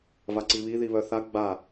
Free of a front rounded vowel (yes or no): no